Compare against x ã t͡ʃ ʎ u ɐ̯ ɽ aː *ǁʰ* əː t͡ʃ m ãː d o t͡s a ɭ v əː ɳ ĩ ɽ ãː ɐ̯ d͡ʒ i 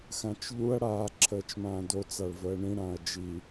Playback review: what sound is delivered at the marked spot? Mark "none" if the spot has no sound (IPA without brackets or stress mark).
ǁʰ